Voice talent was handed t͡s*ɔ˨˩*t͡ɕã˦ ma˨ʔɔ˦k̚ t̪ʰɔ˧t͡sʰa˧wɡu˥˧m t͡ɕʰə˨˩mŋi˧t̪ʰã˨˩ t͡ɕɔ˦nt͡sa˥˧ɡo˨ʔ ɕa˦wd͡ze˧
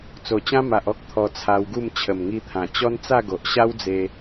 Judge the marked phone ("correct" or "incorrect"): incorrect